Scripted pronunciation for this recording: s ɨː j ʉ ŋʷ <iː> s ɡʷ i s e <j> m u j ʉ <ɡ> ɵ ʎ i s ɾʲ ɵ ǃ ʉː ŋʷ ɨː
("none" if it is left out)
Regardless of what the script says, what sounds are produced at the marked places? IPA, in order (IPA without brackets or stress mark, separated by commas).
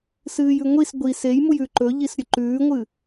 i, j, ǃ